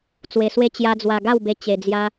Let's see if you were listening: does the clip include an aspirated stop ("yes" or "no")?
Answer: no